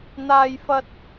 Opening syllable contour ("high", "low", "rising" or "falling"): high